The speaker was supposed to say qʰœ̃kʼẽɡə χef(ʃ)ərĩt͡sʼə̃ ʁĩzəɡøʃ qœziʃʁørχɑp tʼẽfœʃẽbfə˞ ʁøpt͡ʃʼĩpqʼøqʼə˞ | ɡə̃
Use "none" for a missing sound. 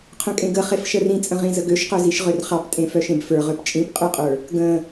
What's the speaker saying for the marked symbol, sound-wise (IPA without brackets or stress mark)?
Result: ʃ